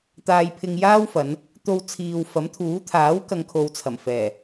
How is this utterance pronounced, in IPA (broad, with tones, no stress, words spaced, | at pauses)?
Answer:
t̪aː˧jpʰɪ˧ŋjaː˥wfɐ˨˧n | t̪o˧w t͡sʰiː˨wfɐ˨˥mt̪ʰuː˨˥ t̪ʰaː˨˥w kɐ˨ŋkʰo˨wt͡sʰɐ˨˩mfɛː˨˩